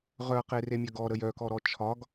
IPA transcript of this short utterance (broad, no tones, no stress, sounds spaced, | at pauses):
ʁ œ ɐ̯ q e r e mʲ œ ɡ ɔ ɾ ə j œ k ɔ ɾ ɔ t͡ʃʰ ɒ ɡ